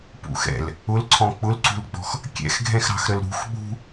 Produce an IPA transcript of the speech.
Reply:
p ṵ x ɛ̰ l | ʊ l ǀʰ ɔ̃ k͡p ʊ l ǀ ṳ l ɡ͡b ɔ̤ x | kʲ ɛ̰ x ɡʱ ɛ̃ x ɾ ɑ̤ x ɾ ə l ɾ ṳ x ɓ ṳ

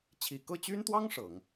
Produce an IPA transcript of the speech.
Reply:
t͡ɕʰ i˨˩ k ɤ˥˩ t͡ɕ y˥ n t̪ w ɑ˥ ŋ ʂ ɤ˨˩˦ ŋ

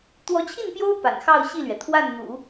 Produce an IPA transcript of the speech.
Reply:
t̪ w ɔ˧˥ t͡ɕʰ i˥˩ n p j o˥ ʊ̯ p a̰˨˩ n x ɑ˥˧ ʊ̯ ɕ i˥˩ l ɥ ɛ˩ t̪ʰ w a˥˩ n n̪ ṵ˨˩˦

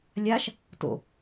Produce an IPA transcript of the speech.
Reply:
lʲ a ʃ | t o̰

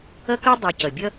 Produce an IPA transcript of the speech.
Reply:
ʌ˦ k ɤ˦ dˤ ɤ˨ c ʌ˩ bʲ ʌ˥

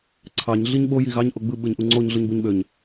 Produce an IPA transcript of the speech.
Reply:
ǀʰ ɑ ɲ ɮ i ɲ ɓ o j i ɣ ɑ ɲ ʔ o ɡ͡b ɯ ɓ ɯ ɲ ʔ u ŋ͡ǀ o ɲ ɮ ɯ ɲ b u ɲ ɓ ø ɲ

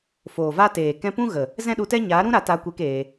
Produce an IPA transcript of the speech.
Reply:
f oː˨ v a˦ t eː˨ k ɛ̃˧ p ũ˦ ɣ ə˨ | z ɛ̃˦ ɗ u˧ t ɛ˦ ɲ a˨˦ ɾ ũ˦ ɾ a˧ t a˧ kʷ e˧ k eː˧

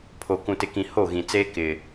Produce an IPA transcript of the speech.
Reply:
pʰ o˨ k ũ˨ t ɪ˨ k ĩ˨ h o˦˨ ɣ ĩ˨ t͡s eː˦ k ɪ˨

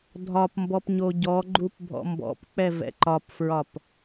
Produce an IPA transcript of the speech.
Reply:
dʱ ɒ p m b ɔ p ɲ o ɟ ɔ ɡ͡ǃ u p bʱ ɔ̰ m b ɔ̰ p k͡p ɛ v ɛ̰ ǃ ɒ p f ɹ ɒ p

